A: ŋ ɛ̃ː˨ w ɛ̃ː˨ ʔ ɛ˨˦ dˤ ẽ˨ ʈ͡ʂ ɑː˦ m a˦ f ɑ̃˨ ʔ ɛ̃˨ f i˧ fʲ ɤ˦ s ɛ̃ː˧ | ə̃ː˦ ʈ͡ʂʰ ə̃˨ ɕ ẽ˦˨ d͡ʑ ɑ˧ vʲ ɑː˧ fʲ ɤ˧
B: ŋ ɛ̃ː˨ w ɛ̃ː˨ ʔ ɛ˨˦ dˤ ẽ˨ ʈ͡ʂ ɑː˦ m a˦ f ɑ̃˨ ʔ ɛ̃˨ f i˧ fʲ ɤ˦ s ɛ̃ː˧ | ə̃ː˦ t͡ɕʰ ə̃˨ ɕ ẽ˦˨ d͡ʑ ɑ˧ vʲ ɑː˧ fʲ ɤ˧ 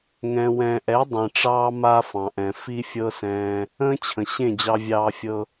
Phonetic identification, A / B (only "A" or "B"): B